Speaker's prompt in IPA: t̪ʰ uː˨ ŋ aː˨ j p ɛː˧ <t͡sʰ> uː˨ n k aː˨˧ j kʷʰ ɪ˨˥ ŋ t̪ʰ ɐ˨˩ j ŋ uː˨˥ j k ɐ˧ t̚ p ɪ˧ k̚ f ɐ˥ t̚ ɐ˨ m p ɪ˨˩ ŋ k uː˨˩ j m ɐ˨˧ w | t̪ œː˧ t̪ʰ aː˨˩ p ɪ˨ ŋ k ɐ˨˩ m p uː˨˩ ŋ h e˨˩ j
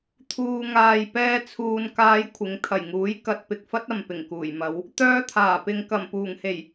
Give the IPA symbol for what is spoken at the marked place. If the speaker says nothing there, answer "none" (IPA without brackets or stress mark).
t͡sʰ